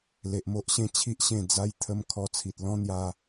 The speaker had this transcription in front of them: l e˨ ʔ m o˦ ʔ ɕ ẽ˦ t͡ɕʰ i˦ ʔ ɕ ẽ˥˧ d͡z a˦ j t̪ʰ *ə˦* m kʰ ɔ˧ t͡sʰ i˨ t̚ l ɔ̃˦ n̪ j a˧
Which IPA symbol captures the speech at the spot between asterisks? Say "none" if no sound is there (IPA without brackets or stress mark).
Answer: ə˦